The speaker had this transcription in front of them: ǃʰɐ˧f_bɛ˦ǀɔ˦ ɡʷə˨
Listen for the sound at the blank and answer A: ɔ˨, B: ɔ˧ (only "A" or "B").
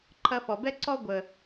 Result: A